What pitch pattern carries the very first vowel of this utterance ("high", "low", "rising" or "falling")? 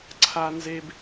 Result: low